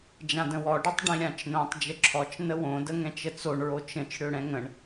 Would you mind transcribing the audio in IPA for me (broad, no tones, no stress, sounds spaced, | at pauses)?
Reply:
d͡ʒ ã d ə̃ w ɔ ɖ i tˤ ɖ ĩ ɾʲ ã t͡ʃ n õ tˤ d͡ʒ ə ǁʰ ɔ t͡ʃ n ə w õ d ə ŋ ɛ̃ t͡ʃ ə t͡s o ɳ ɹ o t͡ʃ ə̃ t͡ʃ ɽ ø ɽ ɛ̃ ŋ ə̃ ɳ